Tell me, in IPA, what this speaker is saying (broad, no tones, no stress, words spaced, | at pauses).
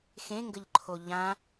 xẽŋɡəʎǃʰo ʎã